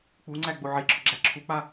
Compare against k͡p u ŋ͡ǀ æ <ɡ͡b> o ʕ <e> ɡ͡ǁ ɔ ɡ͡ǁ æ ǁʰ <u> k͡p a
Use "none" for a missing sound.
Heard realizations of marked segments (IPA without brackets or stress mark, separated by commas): ɡ͡b, e, u